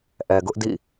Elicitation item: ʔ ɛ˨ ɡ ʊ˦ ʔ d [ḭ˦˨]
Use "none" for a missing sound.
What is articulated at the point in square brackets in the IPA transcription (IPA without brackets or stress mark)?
ḭ˦˨